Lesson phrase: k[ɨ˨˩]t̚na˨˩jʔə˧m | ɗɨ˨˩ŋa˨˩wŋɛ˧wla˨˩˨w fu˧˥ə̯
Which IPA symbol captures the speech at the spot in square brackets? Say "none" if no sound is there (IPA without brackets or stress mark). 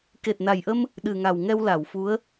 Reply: e˨˩